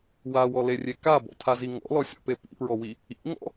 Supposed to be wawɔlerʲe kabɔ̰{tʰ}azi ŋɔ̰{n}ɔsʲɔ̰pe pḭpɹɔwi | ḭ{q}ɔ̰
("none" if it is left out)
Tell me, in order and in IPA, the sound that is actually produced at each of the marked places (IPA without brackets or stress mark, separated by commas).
tʰ, l, ŋ